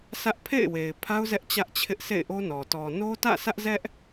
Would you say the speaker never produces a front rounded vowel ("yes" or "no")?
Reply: yes